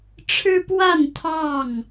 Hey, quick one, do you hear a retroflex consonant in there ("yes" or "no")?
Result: yes